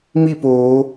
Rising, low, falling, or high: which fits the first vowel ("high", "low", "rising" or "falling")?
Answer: falling